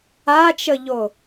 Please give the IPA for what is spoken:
at͡ʃəʎo

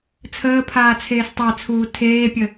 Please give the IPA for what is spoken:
t͡sʰəː pʰaːt͡sʰeːstˤat͡sʰuː tʰeːpʲə

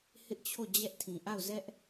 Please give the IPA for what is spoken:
hɪ˦ʔt͡ɕʰo˦˨ d͡ʑɛ˦ʔtʰĩ˨ ʔa˦˨ʊ̯zɛ˦ʔ

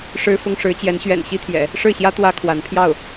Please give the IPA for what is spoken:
ʂɻ̩˥fʊ˥ŋʂɻ̩˧˥ t͡ɕjɛ˧˥nɕɥɛ̰˨˩n ɕi˥t̪ʰjɛ̰˨˩˦ | ʂɻ̩˥˩ɕjä˥ t̪wä˥ kʰwa˧˥n pʰjɑ˥˩ʊ̯

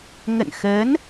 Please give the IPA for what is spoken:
ŋə̰˧˨nxəː˨˦n

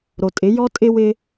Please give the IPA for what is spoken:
ɾo˨tʼɪ˨˦ jɔ˦tʼɪ˦ wɪ˦

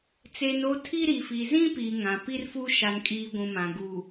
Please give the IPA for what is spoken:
t͡seː˨n o˦ tʰi˦ ɾi˨fi˨zĩ˦piː˨ ŋã˨pi˦rfu˦ ʃa˨nkʼiː˨ ɡʷũ˨mã˨ ɡu˨

